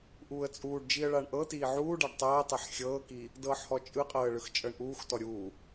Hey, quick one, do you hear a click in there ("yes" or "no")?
no